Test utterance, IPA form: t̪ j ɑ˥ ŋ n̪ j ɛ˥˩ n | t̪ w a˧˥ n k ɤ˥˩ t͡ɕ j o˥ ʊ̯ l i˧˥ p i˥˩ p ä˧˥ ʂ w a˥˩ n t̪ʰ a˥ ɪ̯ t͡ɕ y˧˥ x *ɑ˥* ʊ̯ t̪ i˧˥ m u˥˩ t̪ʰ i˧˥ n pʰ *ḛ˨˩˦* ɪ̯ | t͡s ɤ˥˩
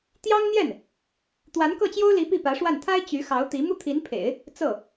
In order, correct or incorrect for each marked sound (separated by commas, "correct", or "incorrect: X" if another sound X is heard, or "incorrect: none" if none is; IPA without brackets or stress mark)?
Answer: incorrect: ɑ˧˥, correct